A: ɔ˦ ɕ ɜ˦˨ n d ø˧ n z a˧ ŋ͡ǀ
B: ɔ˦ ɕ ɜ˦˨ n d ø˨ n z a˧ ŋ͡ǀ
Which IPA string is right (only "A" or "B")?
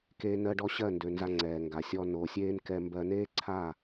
B